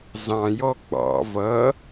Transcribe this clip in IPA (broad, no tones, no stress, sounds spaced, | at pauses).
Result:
z ɑ̃ j ɔ ɡ͡b ɑ̰ v ʌ